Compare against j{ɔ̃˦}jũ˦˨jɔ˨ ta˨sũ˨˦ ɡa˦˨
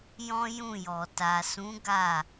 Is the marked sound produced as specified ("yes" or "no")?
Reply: yes